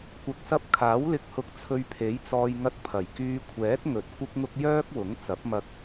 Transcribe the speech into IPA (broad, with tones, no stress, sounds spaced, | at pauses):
kʷ ɐ˨ k̚ s ɐ˧ p̚ kʰ aː˨˥ w l ɪ˧ k̚ h ʊ˧ k̚ t͡sʰ ɵ˧ ɥ pʰ e˨˥ j t͡s ɔː˧ j ŋ ɐ˧ t̚ pʰ ɐ˨˩ j k yː˧ kʷʰ ɛː˨˥ t̚ ŋ ɵ˨ t̚ kʷ ɪ˥ k̚ ŋ ʊ˥ k̚ j œː˥ k̚ w ʊ˨˥ ŋ t͡s ɐ˨˥ p̚ m ɐ˧ k̚